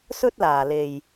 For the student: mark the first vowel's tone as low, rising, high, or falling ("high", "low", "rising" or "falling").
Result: high